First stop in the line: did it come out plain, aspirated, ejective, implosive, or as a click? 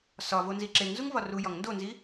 click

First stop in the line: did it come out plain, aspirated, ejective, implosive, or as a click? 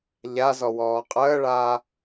ejective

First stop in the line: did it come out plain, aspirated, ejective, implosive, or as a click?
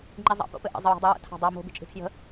click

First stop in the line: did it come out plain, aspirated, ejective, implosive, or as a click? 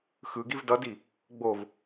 plain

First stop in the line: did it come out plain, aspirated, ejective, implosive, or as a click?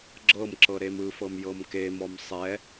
click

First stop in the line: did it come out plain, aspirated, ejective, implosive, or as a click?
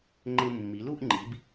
click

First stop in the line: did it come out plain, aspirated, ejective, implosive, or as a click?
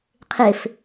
aspirated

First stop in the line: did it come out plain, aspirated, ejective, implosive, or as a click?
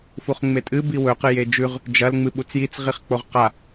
ejective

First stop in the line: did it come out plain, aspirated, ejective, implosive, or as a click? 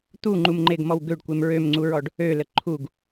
plain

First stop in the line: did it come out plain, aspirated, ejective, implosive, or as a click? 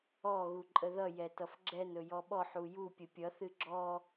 click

